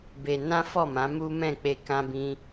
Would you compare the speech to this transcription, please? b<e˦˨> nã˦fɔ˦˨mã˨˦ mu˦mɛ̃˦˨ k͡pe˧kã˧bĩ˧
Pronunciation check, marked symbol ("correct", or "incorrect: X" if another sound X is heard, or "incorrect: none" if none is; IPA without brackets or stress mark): incorrect: e˧